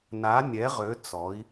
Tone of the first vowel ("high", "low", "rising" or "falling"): rising